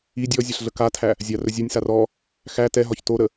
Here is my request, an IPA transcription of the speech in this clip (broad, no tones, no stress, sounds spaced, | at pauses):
i dʲ ɔ zʲ ɑ ɬ ɮ ə k a tʰ æ | zʲ a r ɵ zʲ ɒ nʲ s a r ɔ | x æ t ɛ ɦ ɒ ç t o ɾ ə